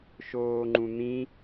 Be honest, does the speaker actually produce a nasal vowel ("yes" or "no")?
yes